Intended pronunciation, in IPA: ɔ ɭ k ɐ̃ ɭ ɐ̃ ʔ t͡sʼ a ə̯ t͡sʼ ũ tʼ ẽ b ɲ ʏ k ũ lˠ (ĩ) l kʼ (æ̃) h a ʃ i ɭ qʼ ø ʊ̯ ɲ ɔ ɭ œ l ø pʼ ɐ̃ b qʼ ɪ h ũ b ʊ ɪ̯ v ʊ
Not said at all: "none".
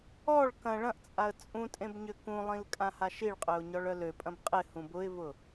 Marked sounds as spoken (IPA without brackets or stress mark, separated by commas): ĩ, ã